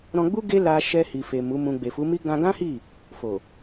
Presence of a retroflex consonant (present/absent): absent